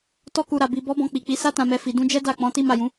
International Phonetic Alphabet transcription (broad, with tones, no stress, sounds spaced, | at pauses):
t ɔ˧ k u˨ ɾ a˨ b i˨ b ɔ˨˦ b ɔ̃˧ k͡p i˨ k͡p i˨˦ s a˧ t ã˨ m ɛ˨ f i˨ d ũ˧ d͡ʒ ɛ˦ d a˦˨ k͡p ɔ̃˨˦ t i˦ m a˦˨ j ũ˨˦